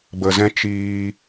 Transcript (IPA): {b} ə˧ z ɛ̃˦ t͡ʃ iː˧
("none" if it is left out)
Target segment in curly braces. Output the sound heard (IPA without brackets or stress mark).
b